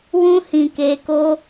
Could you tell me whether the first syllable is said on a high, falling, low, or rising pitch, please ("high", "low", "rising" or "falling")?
high